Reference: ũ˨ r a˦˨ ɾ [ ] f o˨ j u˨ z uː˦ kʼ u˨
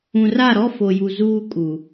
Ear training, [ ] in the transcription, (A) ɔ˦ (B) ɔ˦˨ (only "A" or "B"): A